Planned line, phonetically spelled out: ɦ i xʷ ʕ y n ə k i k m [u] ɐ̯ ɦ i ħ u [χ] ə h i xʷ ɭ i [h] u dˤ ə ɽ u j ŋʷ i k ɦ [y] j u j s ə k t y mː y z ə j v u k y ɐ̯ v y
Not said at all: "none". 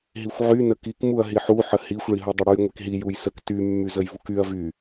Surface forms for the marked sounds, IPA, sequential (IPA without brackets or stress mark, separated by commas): u, ħ, ɦ, i